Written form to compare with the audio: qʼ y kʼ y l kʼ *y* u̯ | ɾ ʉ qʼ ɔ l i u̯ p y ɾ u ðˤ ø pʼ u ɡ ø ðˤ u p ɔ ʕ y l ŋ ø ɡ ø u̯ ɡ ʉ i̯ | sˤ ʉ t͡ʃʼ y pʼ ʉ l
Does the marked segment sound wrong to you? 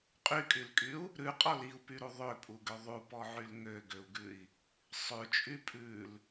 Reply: no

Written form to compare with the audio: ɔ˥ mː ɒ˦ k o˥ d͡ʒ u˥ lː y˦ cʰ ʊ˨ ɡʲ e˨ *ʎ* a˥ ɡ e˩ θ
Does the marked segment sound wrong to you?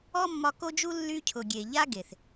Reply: no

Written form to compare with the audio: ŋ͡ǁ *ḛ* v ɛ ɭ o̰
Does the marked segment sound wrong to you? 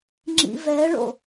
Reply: yes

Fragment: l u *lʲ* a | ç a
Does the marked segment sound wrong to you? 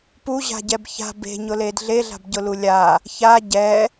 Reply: no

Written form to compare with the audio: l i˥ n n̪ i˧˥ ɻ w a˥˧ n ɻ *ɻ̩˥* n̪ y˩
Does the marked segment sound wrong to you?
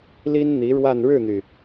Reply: yes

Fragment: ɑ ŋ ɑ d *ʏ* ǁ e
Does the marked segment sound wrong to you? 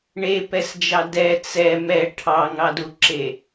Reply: yes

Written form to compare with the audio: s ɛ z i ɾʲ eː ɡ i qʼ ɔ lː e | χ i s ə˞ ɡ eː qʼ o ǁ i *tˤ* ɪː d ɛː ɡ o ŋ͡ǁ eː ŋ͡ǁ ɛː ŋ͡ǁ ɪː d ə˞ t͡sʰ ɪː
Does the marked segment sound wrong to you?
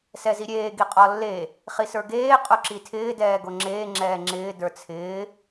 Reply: yes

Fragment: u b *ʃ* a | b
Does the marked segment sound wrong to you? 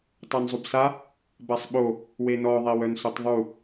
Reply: yes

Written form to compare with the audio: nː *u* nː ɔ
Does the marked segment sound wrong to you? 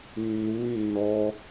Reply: no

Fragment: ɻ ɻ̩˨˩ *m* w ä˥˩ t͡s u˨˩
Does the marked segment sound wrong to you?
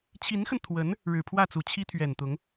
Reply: yes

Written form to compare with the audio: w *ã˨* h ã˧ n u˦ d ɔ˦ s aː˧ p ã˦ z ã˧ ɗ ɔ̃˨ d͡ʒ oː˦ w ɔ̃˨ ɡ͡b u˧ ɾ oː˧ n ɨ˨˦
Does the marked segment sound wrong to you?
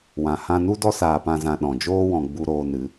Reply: no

